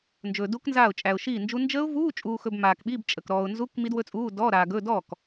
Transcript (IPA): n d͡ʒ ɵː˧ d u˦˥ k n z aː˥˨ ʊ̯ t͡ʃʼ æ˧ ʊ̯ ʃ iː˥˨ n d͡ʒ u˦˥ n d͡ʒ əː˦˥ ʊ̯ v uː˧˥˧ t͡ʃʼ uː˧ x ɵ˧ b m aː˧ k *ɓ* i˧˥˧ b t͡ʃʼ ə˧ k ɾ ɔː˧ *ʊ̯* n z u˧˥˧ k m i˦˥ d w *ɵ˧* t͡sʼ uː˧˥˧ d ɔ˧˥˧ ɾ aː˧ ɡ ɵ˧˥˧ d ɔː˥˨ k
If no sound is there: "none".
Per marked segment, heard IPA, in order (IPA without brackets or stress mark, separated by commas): ɓ, ʊ̯, ɵ˦˥